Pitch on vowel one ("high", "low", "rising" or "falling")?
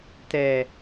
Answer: low